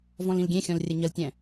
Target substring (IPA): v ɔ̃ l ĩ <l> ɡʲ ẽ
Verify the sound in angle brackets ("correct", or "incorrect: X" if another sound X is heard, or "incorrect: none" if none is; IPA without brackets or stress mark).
correct